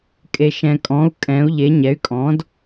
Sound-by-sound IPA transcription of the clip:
kʼ e˩ ʃ ɛ̃˩ kʼ ɔ̃˩˧ u̯ kʼ ɛ̃˩˧ u̯ ʎ e˩˧ ɲ ɛ˩˥ y̯ kʼ ɔ̃˩˥ d

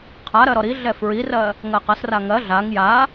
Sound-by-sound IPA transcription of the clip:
qʰ a ɾ ɜ ɾ ɔ ɾ i ɮ ɛ f ɹ i r ɜ | ŋ ɜ q ɐ s r a ŋ ɜ ɮ a ŋ j a

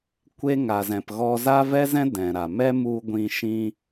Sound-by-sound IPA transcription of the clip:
kʷ e˦ ŋ a˧ z ɛ̃˧ p ɣ ɔ˦ z a˦ v ɛ˦ z ɛ̃˦ d ɛ̃˨ ɾ a˨ m ɛ˦ m u˧ ɡʷ ĩ˧ ʃ ĩ˦

